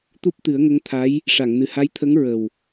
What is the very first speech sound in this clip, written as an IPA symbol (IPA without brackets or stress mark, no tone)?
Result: t̪